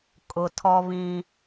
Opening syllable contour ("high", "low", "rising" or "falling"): low